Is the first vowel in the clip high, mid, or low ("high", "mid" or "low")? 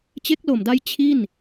mid